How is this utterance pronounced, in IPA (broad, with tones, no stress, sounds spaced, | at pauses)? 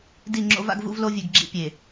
d i˦˨ ŋ͡ǁ o̰˦ v a̰˦ ɡ v ṵ˦ v l o˦ vʲ ʉ˨ ɡ ɡ͡ǁ ḭ˦ pʲ e˨